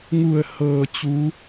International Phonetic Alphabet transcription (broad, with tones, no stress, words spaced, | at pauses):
ŋu˧˩ə̯ hɤː˩t͡ɕu˩˧